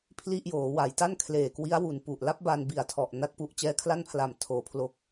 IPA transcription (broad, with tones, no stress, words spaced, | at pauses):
pʰli˥˩ʔ joː˩˦wa˩˦jta˥˩n kʰleː˨˩kwi˦˥a̯wu˨˩n pu˨˩ʔla˦˥p̚ba˧n bi˨˩a̯tʰɔ˨˩ʔ na˦˥t̚pu˦˥ʔ t͡ɕɛː˦˥kʰla˥˩npʰla˨˩m tʰoː˩˦pʰlo˨˩k̚